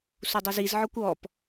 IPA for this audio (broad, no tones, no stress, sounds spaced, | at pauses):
s u dˤ ɯ z i z ʕ ɔ kʷ ɔ p